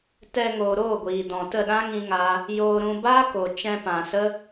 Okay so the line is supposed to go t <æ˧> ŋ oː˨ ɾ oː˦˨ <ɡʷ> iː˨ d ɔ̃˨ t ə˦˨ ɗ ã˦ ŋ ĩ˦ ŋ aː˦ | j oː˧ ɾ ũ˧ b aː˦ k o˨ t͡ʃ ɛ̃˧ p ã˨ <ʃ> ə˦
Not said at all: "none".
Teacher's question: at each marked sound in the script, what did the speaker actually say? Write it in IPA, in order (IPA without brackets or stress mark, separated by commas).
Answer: ɛ˧, ɡʷ, s